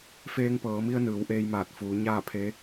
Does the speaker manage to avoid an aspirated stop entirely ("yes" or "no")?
no